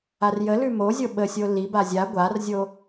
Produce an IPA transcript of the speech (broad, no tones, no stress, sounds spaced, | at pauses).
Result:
a r j ə l ʉ m o zʲ o ɓ ə sʲ o l i b a zʲ a ɡʷ a r zʲ o